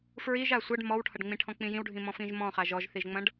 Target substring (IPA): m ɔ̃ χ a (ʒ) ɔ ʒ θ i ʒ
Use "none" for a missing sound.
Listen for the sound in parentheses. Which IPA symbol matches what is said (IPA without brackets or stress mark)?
ʒ